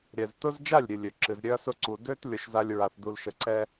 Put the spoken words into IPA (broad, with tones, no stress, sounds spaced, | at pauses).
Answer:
ɾʲ ɛ˨ z t ʊ˦ z d͡ʒ a˦˨ lʲ ɾʲ ɨ˨ lʲ ø˨ ǁ ɨ˨ z ɾʲ ø˦ ɐ̯ s ʊ˦ ǀ u˨ d ø˦ t lʲ ʊ˨ ʃ z a˦ lʲ ɹ a˨ θ d u˨ l ʃ ə˨ ǀ ɛ˦